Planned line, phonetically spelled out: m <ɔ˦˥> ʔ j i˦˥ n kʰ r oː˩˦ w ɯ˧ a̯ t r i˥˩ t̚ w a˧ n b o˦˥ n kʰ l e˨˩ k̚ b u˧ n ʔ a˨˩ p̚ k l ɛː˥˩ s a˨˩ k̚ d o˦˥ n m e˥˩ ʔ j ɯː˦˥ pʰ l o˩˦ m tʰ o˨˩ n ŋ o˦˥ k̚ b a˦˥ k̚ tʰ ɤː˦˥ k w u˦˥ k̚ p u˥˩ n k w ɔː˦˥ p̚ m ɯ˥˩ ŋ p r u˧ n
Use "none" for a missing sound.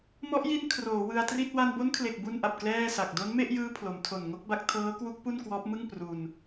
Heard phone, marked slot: ɔ˦˥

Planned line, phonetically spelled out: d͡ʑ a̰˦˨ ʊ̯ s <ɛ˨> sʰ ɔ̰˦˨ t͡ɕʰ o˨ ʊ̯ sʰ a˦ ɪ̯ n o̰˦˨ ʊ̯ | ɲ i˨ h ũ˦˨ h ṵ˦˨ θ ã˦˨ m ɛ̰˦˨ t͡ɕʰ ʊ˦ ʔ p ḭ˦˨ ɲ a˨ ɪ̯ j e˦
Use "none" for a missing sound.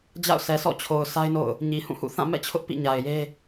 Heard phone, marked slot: ɛ˨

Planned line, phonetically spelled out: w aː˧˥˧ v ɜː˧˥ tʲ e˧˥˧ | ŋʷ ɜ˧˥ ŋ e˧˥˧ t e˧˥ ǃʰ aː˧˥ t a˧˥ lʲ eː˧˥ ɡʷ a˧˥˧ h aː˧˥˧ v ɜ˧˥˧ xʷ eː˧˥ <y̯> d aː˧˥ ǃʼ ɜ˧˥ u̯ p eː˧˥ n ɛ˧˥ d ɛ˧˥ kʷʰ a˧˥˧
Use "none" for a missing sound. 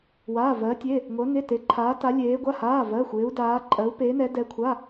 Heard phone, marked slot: u̯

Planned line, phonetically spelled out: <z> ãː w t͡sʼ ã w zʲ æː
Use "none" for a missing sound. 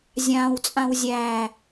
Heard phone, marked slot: zʲ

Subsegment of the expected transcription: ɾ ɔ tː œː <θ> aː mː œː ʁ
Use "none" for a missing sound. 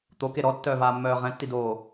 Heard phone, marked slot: v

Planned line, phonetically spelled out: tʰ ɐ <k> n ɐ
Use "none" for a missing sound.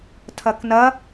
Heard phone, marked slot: k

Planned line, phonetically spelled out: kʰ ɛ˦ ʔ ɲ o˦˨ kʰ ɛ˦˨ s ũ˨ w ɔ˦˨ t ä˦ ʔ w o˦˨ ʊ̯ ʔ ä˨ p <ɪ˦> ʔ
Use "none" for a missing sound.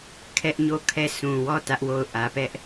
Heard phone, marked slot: ɛ˦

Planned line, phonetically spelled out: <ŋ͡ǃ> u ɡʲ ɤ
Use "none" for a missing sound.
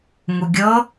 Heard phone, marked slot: ŋ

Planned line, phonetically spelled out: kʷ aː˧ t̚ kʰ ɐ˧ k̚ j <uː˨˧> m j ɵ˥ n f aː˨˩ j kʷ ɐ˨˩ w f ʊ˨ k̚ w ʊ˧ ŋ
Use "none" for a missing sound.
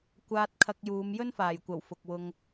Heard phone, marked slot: uː˨˧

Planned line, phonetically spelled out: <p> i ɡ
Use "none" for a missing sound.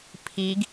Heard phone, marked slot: pʰ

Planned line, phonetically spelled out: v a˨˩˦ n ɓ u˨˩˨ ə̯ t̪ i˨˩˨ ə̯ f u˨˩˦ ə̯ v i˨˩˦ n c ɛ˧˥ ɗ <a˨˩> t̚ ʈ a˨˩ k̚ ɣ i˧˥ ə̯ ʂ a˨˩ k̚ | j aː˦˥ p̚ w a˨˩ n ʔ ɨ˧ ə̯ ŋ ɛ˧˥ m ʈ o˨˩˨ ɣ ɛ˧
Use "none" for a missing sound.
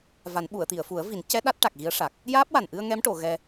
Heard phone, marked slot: a˦˥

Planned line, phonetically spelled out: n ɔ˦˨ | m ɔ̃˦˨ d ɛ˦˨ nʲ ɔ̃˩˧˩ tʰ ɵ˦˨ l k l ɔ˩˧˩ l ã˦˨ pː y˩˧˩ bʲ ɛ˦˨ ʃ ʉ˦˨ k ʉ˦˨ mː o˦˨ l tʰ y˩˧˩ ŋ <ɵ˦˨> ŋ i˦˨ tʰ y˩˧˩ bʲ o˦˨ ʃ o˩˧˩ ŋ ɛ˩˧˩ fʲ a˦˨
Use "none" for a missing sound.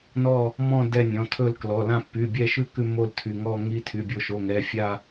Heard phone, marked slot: ɔ˦˨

